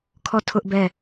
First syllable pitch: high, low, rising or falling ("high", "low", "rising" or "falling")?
falling